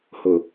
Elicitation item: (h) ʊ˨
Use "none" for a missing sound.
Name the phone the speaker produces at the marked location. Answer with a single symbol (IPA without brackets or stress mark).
h